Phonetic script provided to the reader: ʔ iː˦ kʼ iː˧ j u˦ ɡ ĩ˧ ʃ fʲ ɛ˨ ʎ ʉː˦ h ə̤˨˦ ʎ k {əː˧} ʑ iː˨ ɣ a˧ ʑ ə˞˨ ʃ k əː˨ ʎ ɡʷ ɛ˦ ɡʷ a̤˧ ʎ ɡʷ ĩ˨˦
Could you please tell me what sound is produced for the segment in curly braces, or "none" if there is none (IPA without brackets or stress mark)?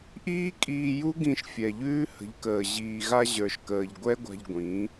əː˨